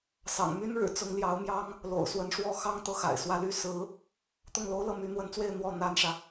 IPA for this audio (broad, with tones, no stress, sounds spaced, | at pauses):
s ɑ̰˨˩ ŋ m y˥ n ɻ ɻ̩˨˩ t͡s ʊ˧˥ ŋ l j ɑ˧˥ ʊ̯ m j ɑ˥ ŋ | l o̰˨˩ ʊ̯ s w ə˧˥ n ʂ w ɔ˥ x ɑ˥ ŋ t̪ ɤ˥˩ x a̰˨˩ ɪ̯ s w ä˥˧ l y˥˩ s ɹ̩˧˥ | t̪ ʊ˥˩ ŋ l o˥ ʊ̯ l ɤ˥˩ m y˧˥ n̪ w ə˧˥ n t͡s w e˥˧ ɪ̯ n̪ w ɔ˥˩ n̪ a˥ n ʂ ä˨